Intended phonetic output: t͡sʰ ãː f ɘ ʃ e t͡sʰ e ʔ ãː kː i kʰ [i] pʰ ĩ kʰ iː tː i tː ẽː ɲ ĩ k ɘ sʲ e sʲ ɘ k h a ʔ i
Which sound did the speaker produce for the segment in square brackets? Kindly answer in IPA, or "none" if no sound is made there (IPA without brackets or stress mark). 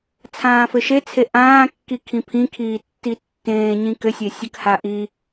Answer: ĩ